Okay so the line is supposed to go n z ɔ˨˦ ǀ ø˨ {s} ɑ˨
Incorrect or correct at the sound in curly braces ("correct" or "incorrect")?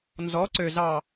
incorrect